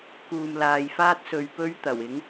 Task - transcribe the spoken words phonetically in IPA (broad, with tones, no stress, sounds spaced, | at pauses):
k uː˨ m l aː˨ j f aː˥ t̚ s ɵ˧ ɥ p ɵ˥ ɥ t̪ ɐ˨˩ w ɪ˨˥ ŋ